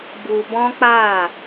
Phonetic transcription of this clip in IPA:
bu˧bɔ̃˦k͡pa˦˨

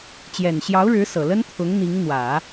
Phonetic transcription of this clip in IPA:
t͡ɕjɛ˨˩nɕjɑ˧˥ʊ̯ɻɻ̩˧˥ sɤ˨˩ lə˥nt̪ʰʊ˧˥ŋ n̪i˧˥ŋ n̪wä˨˩˦

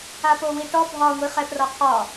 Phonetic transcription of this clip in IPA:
apowiʈɔ bʱɒ ŋʷiχɛprɒqʰɒ

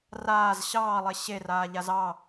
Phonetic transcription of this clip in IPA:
raːz ɕɑːlˠe ɕeraːʎaz ɑ

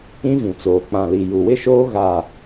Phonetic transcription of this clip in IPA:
ĩ˦vĩ˨t͡soː˨ k͡pã˨li˨ ju˨wɪ˦ʃoː˦ ɣa˦˨

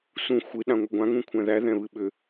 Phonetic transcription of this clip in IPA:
sũ xʷɨ ɗãŋʷɨɡʷãŋ ũkʷʰæ̃ðæ ðɛ̃βɨɓʏ

